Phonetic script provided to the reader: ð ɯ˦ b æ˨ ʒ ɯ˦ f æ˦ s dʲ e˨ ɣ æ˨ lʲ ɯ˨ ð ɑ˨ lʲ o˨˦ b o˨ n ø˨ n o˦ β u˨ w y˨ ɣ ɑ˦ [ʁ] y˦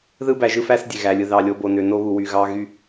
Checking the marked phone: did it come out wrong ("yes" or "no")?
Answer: yes